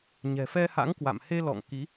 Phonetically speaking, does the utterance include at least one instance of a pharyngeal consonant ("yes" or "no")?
no